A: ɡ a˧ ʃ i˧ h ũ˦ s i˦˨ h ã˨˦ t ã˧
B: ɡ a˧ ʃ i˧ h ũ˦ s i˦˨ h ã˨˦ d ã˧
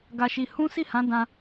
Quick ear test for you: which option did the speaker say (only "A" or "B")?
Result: B